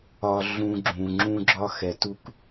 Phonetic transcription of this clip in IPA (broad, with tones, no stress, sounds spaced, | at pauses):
ɒ˧ ɮ ũ˧ ɡ͡ǁ ũ˨ ŋ͡ǁ ũ˦ ɡ͡ǁ ɒ˦ x ɛ˨ t u˧ k